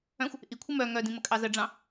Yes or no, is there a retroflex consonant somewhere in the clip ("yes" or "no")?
yes